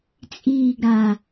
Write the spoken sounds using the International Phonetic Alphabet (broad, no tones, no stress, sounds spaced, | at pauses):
t͡sʼ iː ɡ ɾ a